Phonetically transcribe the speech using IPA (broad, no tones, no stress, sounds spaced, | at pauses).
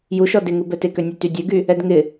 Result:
j u ʃ ɔ d ɪ ŋ u b ɛ t ɪ k ø nʲ u t y dʲ ø ɡ y | ɛ d ŋ ɪ